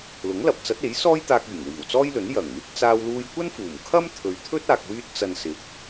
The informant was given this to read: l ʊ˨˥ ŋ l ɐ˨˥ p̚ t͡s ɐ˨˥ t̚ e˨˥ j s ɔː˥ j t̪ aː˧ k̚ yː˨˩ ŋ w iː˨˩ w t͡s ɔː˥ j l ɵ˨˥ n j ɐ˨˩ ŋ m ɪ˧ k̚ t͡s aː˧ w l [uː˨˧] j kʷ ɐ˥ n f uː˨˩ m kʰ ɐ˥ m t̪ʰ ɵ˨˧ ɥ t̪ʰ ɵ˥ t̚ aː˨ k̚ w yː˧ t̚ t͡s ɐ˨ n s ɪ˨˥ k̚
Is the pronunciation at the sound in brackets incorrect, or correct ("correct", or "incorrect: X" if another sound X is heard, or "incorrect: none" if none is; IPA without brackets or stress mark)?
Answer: incorrect: uː˧